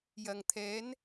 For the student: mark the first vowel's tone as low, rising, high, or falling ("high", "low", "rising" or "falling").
low